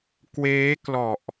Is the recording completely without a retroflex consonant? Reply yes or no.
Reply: yes